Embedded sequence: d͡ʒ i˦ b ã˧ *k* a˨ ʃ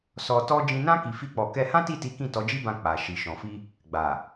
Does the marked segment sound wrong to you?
yes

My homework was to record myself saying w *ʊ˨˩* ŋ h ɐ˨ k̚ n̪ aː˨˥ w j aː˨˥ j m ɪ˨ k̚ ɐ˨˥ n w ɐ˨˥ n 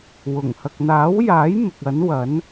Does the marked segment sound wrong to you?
no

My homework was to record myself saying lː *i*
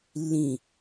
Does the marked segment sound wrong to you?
yes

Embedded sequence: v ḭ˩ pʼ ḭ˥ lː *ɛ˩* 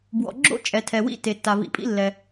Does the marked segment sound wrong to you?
no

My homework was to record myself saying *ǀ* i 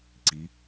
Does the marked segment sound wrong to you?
no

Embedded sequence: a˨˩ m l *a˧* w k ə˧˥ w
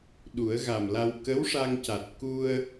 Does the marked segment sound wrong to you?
no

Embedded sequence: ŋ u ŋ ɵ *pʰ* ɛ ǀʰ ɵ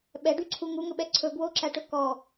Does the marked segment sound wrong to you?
yes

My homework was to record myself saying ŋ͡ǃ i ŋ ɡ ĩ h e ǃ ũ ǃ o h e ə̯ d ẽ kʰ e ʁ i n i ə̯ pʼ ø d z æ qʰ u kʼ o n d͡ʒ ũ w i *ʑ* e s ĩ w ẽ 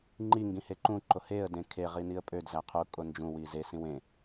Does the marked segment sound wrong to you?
yes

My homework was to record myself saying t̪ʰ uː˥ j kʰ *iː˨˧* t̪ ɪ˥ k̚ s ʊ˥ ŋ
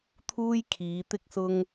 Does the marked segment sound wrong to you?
no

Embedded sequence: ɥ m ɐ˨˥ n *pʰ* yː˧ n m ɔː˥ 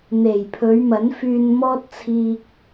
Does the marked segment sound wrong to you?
yes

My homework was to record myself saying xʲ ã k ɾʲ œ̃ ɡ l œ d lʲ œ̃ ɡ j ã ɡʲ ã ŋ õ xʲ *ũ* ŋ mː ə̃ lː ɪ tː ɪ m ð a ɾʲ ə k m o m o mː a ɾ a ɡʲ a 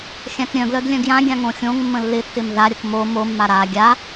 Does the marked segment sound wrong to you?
yes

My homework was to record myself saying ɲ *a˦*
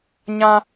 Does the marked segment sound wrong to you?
yes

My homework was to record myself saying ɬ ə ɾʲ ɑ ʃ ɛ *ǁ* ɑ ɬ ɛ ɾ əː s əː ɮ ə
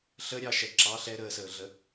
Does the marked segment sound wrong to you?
no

